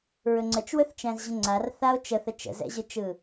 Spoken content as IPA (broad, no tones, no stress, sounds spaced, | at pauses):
ɹ ɵ ŋ͡ǀ ə t͡ʃ w ɵ θ t͡ʃ æ̃ z ʑ ə̃ ŋ͡ǀ a r θ a o̯ t͡ʃ ə θ ə t͡ʃ ə̰ z ɛ̰ ʑ ɯ t͡ʃ ɯ